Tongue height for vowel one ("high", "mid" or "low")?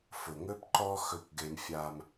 high